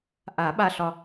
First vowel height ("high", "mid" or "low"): low